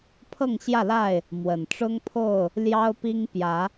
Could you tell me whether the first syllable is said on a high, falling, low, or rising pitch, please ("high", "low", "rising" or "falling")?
falling